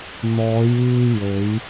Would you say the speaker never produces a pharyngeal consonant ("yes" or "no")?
yes